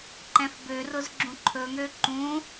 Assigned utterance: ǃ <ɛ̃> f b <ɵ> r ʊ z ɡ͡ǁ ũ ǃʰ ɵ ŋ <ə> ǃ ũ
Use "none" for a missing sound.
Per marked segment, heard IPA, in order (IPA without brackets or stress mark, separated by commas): ɛ̃, ø, ø